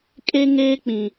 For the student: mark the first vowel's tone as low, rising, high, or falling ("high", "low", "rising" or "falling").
high